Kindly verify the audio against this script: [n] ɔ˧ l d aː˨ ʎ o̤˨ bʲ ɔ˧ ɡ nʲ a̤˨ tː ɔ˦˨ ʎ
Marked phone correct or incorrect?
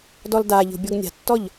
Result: incorrect